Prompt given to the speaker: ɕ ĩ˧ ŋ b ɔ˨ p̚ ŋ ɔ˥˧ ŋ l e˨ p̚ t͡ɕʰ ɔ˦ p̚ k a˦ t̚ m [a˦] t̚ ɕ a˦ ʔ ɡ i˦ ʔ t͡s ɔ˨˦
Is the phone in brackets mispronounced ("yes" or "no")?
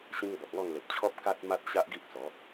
no